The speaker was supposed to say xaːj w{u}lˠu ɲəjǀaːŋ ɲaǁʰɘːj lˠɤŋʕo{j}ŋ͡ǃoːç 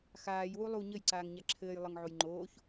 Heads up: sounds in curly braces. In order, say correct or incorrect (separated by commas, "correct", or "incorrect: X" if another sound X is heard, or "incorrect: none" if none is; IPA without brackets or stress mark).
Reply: correct, correct